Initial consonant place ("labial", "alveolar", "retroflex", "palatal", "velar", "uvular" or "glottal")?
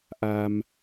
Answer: glottal